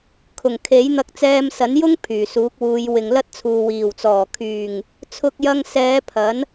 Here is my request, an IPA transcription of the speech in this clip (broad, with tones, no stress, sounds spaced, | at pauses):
kʰ ʊ˨˩ ŋ kʰ e˨˥ j n̪ ɐ˧ k̚ t͡s ɛː˧ m s ɐ˨˥ n j ʊ˥ ŋ pʰ yː˨˩ s uː˨˥ k̚ w uː˨˧ j w ɪ˨ ŋ l ɐ˥ t̚ t͡sʰ uː˨ w iː˨˩ w t͡s ɔː˨˩ kʰ yː˨˩ ŋ | t͡sʰ ʊ˧ k̚ j ɐ˧ ŋ s ɛː˨˧ pʰ ɐ˨˥ n